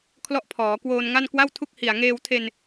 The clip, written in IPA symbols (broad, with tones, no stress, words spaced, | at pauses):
kʰlɔ˥˩ʔpʰɔː˩˦ kwoː˧nŋa˥˩n kwa˥˩wtʰu˥˩k̚hi˨˩a̯ ŋeː˧wtʰe˧n